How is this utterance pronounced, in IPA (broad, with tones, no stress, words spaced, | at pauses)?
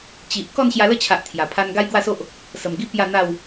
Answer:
t͡ɕi˨ʔ kɔ˥˧nɕja˧lə˥˧t͡ɕʰa˨ʔ t̪ʰja˨˩pʰa˦n ɡa˦jɡwa˥˧so˦ʔ | sə˨˩mɡi˦ pja˥˧n̪a˥˧w